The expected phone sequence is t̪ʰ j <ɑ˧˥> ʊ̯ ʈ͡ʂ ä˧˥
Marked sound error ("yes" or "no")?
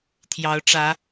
no